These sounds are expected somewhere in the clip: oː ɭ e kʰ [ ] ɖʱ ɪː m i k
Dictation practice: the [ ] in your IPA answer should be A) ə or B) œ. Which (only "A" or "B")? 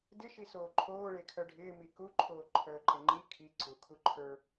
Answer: B